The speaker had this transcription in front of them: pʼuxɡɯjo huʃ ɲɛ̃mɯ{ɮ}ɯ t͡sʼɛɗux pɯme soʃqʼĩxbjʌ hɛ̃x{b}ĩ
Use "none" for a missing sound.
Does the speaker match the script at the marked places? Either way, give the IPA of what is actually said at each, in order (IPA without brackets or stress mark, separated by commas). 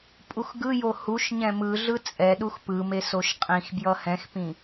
ɮ, p